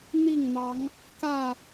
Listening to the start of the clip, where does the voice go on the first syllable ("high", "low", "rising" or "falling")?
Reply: falling